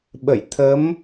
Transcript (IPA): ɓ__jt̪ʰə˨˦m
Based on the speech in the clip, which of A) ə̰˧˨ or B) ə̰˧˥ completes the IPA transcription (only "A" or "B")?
A